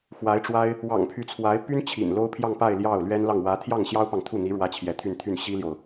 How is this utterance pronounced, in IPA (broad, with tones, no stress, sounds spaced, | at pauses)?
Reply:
x w a˧˥ ɪ̯ ʈ͡ʂ w a˥ ɪ̯ | w ɑ̰˨˩ ŋ pʰ y˧˥ t͡sʰ w a˧˥ ɪ̯ p y˥ n t͡ɕʰ ḭ˨˩ n l o˥ ʊ̯ pʰ j ɑ˥˧ ŋ p a˥˧ ɪ̯ l j ɑ˥˩ ʊ̯ l ɥ ɛ˥ n l ɑ˥˩ ŋ w ä˧˥ t̪ʰ j ɑ˥˩ ŋ ɕ j ɑ˥ ʊ̯ p ɑ˨ ŋ t̪ʰ u˥˩ n̪ i˧˥ ɻ w ä˥ t͡ɕʰ j ɛ˧˥ t̪ʰ y˥˧ n t̪ʰ y˥˩ n ɕ i˥ l j o˨ ʊ̯